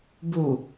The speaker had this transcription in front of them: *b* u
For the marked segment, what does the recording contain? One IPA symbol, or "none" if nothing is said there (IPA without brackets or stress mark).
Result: b